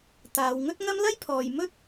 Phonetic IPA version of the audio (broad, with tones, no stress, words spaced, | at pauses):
t̪aː˨˧wŋɵ˥t̚ ŋɐ˥m lɐ˥jpʰɔː˨j mɵ˥t̚